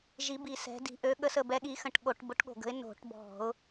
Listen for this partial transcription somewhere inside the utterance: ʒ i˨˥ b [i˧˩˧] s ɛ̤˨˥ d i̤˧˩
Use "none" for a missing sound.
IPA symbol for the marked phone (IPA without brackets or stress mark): i˧˩